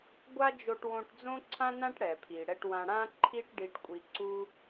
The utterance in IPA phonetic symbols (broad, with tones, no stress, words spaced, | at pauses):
ɡʷa˥d͡ʒo˧ʈ wõ˧ʈd͡zõ˥ǀʰã˥nã˥ʈ ɽɛ˩pʰi˩ ɽɛ˧ʈwã˧ ɽã˥ǃʰi˥ʈ ɖi˧ʈkʷʼi˧ǀu˥